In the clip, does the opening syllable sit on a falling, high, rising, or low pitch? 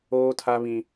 high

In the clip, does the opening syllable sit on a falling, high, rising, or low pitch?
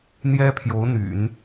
high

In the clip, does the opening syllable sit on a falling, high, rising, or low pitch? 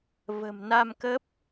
low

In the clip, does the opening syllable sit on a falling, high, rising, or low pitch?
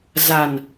low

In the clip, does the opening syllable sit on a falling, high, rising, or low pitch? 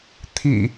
low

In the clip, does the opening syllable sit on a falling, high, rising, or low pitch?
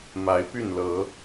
rising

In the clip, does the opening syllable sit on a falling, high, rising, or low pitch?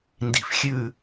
low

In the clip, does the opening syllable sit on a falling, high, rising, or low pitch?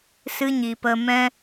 high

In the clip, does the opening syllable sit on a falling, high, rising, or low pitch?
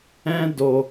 high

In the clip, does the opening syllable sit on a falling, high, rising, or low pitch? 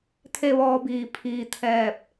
falling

